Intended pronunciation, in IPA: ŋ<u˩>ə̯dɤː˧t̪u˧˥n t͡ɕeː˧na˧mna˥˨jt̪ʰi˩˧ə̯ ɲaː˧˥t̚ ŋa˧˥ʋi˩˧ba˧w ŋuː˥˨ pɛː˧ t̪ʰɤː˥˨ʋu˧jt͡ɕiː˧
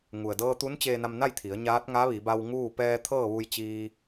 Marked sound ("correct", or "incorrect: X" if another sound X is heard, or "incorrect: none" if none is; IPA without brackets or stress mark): correct